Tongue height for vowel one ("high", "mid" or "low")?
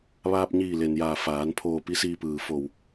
low